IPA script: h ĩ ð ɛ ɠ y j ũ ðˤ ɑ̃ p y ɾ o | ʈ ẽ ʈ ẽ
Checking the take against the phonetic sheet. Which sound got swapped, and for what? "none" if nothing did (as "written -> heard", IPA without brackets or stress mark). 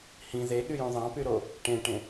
ɛ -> e